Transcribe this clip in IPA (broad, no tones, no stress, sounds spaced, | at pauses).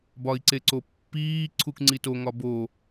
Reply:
b ɒ i̯ ǀ e ǀ o pː iː ǀʰ u k ŋ͡ǀ i t o ŋ ɒ b o